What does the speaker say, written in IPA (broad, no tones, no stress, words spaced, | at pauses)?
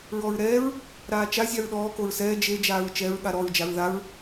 ɹɔɹɾɛːɹ | ɾaːt͡ʃa zʲaɹɗɔː koɹsɛː d͡ʒe d͡ʒaːɹt͡ʃɛɹ ɠaɾɔɹ d͡ʒaɹðaɹ